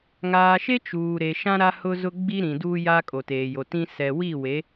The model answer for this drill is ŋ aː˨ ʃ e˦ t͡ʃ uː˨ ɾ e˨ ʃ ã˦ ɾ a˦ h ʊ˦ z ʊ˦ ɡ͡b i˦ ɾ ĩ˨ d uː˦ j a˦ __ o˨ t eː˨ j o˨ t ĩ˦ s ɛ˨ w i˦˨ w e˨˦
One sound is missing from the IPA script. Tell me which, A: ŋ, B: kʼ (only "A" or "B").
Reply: B